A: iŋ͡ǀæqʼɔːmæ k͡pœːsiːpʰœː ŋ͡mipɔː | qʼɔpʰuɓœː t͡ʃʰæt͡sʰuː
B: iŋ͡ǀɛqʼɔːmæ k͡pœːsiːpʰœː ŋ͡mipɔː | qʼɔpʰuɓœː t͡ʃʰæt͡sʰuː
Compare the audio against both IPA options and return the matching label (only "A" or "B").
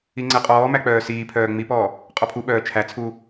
B